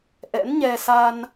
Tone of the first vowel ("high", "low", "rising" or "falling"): rising